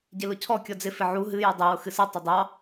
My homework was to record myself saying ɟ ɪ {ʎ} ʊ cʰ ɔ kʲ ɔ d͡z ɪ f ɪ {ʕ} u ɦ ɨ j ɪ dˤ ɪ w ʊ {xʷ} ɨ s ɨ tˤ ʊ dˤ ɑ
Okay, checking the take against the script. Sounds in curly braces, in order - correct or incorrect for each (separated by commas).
incorrect, correct, incorrect